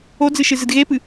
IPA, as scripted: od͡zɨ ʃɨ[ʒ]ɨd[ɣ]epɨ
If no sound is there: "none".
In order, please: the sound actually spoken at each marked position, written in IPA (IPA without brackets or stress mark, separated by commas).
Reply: z, ɣ